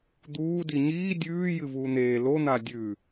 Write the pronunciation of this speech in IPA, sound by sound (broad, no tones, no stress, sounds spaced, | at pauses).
d̪ uː d i ɲ iː dʲ ʉː j ɨ v uː n̪ eː l o n̪ a dʲ ʉ